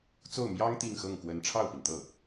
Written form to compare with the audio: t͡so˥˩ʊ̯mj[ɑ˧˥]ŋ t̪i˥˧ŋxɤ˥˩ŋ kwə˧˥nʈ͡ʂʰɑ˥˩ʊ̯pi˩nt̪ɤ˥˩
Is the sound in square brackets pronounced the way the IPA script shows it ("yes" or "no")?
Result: no